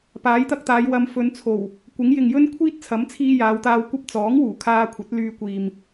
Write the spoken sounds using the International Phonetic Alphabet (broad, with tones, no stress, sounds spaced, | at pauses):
p aː˨˥ j t̪ ɐ˧ k̚ t̪ aː˨˧ j w ɐ˧ m f ɵ˨˧ n t͡sʰ o˨˩ w | kʷ ɪ˨˥ ŋ j ɪ˨ ŋ j ɵ˥ n kʷʰ iː˥ t̚ t͡sʰ ɐ˨˥ m t͡sʰ iː˧ j aː˨˧ w t̪ aː˧ w kʷ ɐ˥ p̚ t͡s ɔː˨˥ ŋ w uː˨˩ kʰ aː˧ kʷʰ ɐ˨˥ t̚ l yː˧ kʷ iː˨ m